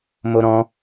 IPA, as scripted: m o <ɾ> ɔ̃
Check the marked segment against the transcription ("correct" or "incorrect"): correct